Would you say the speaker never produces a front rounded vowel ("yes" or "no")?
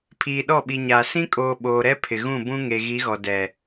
yes